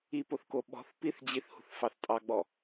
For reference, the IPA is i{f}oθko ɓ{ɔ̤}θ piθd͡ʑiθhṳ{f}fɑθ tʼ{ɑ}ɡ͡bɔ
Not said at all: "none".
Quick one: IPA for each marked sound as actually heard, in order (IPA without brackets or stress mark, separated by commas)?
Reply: p, ɔ̤, θ, ɑ